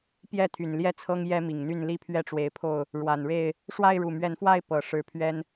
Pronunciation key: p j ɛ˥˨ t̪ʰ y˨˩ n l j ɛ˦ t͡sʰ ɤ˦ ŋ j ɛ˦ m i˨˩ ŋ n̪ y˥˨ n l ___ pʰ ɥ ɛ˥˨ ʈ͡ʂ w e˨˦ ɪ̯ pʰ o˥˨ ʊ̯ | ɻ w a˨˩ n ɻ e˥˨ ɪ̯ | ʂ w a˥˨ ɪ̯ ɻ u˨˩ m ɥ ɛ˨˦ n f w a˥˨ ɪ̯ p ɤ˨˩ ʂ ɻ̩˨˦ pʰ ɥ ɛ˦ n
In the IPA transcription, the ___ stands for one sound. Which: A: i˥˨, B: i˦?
B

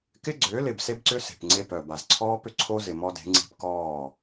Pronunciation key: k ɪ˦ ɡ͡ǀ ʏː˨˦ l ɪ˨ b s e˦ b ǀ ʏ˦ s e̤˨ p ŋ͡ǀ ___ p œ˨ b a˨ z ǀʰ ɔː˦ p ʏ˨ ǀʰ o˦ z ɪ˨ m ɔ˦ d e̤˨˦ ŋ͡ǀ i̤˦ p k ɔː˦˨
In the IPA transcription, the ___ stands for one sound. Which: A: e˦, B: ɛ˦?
A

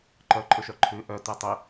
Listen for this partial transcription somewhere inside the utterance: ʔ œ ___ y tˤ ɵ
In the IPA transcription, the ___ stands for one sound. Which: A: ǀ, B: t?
B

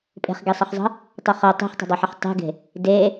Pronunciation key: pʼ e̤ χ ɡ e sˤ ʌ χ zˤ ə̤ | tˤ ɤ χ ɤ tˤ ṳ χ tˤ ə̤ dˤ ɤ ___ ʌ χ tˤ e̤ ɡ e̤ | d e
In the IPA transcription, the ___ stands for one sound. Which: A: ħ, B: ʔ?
A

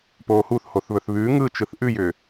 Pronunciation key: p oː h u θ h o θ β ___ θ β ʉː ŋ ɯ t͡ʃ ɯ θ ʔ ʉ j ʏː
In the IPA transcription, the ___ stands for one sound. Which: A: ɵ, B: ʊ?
A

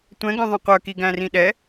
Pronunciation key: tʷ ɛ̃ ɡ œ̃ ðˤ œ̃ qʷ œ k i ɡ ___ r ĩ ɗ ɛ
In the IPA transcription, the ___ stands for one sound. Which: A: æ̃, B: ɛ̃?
A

